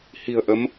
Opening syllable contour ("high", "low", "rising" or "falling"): low